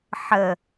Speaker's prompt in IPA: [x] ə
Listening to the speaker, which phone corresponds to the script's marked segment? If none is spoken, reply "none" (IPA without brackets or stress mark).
ħ